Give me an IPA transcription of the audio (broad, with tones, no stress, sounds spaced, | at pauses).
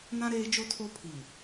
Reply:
n ã˦ ɾ eː˦ d͡ʒ o˦ tʰ o˦ pʰ i˨